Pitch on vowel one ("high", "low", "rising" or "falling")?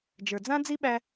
low